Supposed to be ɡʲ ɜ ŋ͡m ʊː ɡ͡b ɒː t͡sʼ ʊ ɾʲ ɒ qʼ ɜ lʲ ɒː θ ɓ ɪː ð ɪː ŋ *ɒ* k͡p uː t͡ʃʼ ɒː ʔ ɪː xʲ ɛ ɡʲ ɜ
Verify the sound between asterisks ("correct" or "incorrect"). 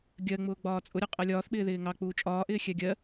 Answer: incorrect